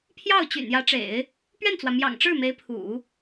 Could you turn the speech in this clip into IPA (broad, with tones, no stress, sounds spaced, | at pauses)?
pʰ j ɑ˥˩ ʊ̯ t͡ɕ y̰˨˩ n j ä˧˥ ʈ͡ʂ ḛ˨˩˦ ɪ̯ | p ɥ ɛ˥˩ n t͡s w ä˩ m j ɑ̰˨˩ ŋ ʈ͡ʂ ɻ̩˥˩ m e˧˥ ɪ̯ pʰ ṵ˨˩˦